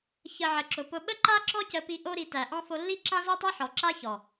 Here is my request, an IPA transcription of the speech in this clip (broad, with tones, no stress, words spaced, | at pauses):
çə˨ ʕə˨ǁʊ˨pʊ˧ ɓə˦ǃa˦ǁɔ˦ cə˧pi˧ ʔo˧ɾi˨ tæ˨ʔɔ̃˦ fo˧lːi˦ ǁã˦zo˦tˤa˦ħɔ˨ ǁa˦çɔ˨